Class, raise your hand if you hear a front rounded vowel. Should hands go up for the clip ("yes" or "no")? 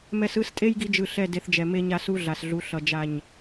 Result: no